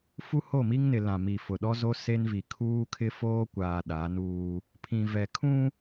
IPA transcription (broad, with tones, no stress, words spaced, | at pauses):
fu˦ho˦˨mi˦ŋnɪ˨ lã˨mi˨fʊ˨ ɗɔ˦zo˦ se˦nvi˨ kʰuː˦kʰɪ˦foː˦kʷaː˨ ɗa˨˦nuː˦ | pʰĩ˨vɛ˨ kʰũ˦